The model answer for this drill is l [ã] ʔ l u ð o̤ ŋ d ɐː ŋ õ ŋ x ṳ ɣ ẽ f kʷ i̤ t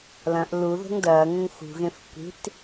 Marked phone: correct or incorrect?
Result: incorrect